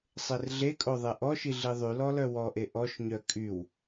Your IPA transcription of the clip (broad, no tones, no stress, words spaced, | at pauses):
sˤerɮekʼo ðˤeʔɔʃi ɮiðˤylɔ lœwɔʔe ʔɔʃɲœ kʼyw